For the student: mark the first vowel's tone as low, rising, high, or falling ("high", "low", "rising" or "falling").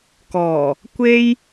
low